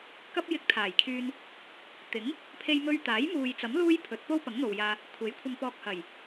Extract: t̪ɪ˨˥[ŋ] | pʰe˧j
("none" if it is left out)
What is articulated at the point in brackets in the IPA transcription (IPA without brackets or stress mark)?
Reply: ŋ